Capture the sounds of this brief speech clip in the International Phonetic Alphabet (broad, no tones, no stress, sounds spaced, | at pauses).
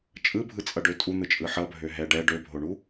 t͡ʃʼ ɯ bʱ ɯ t͡sʼ ʌ ɖ ø tʼ u n̪ ɯ t͡ʃʼ ɯ ħ ʌ bʱ ø ɦ ɛ ɖ ɛ ɖ ø bʱ o ɳ u